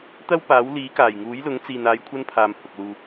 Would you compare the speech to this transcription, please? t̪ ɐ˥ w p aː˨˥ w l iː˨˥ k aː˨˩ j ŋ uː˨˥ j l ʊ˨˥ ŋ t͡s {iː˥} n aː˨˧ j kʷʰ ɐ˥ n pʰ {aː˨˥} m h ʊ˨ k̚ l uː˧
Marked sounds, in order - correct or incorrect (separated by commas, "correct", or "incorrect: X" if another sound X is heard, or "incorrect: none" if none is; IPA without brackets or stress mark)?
incorrect: iː˨, incorrect: aː˨